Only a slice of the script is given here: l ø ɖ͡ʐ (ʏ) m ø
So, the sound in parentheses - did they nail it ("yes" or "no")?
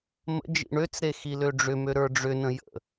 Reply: yes